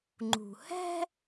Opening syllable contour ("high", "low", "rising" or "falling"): low